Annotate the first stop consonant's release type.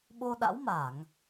implosive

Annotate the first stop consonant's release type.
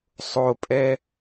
ejective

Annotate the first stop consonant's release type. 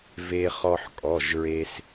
ejective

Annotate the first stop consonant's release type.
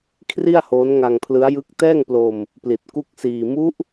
aspirated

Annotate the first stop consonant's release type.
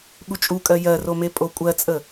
implosive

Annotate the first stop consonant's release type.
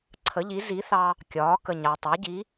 click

